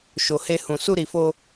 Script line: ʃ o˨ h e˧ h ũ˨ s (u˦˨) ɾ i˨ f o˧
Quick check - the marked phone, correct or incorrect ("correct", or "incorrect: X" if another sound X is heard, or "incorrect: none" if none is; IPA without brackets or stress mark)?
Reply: incorrect: u˧